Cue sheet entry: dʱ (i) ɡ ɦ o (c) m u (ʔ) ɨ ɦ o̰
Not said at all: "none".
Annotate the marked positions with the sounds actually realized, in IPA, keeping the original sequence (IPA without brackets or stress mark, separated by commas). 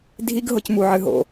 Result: i, c, ʕ